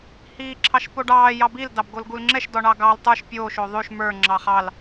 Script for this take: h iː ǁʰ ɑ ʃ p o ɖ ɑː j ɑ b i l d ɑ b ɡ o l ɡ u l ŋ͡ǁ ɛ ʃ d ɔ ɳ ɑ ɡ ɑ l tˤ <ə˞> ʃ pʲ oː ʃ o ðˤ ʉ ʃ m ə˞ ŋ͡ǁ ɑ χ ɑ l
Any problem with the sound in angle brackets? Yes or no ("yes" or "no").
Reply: no